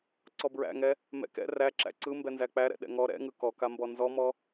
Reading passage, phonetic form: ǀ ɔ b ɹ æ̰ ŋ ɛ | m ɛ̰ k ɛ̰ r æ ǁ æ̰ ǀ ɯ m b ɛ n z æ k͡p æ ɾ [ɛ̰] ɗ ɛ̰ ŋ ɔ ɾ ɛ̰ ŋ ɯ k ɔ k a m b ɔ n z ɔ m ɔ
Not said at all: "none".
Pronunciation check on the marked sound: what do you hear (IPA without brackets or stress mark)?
ɛ̰